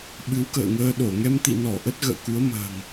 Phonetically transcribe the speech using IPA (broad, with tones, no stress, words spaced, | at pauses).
ɓɨ˨˦wkə̰ː˧˨ŋəː˧ɗo˧˩ ŋɛ˧mt̪ḭ˧˨nɔ˧˩ ʔə˦˥t̚ɣə̰ː˧˨ ku˨˦ə̯mə̤ː˨˩ŋ